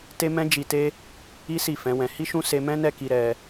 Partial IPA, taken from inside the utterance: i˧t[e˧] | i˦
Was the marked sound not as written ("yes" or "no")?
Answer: yes